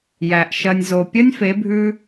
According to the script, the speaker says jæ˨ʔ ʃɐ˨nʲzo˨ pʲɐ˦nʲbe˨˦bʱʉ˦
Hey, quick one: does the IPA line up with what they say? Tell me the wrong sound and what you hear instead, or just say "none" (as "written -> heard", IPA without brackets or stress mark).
b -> f